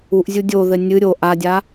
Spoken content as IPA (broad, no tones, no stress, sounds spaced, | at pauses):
u ʔ zʲ u dʲ o ð ɘ nʲ ɨ ɾʲ o ʔ a dʲ a